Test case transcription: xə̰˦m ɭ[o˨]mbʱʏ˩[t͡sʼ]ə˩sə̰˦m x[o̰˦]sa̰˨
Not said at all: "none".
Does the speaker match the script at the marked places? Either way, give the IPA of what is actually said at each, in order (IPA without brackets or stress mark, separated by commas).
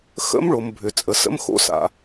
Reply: o˩, t͡sʼ, o̰˦